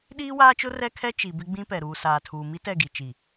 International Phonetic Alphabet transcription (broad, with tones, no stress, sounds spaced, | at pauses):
ɗ iː˦ w aː˦ t͡ʃ ʊ˦ r ɛ˦ kʰ ɛ˦ t͡ʃ i˨ b ɪ˦ ɡ͡b ĩ˦ p ɛ˨ ɾ uː˨ s aː˨ tʰ uː˨ m i˦ t ɛ˦˨ ɡ i˨ t͡ʃ i˨